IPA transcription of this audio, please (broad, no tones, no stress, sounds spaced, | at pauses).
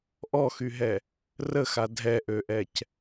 ʔ ɔ x y ɦ ɛ | r ə x a dʱ ɛ ʔ ø ʔ ɛ c